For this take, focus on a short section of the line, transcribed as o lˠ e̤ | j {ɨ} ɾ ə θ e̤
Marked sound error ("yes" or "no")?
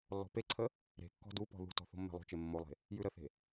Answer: yes